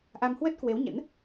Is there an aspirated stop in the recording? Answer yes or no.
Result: no